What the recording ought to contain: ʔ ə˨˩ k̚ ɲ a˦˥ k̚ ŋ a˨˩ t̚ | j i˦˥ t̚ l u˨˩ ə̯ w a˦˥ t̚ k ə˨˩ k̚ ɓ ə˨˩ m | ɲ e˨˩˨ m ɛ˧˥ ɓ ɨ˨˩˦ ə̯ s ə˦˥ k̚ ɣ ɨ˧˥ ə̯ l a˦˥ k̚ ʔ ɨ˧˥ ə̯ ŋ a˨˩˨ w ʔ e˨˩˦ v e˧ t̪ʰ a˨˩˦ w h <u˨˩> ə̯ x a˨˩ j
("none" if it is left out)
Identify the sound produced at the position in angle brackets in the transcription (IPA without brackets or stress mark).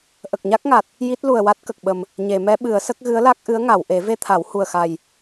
u˨˩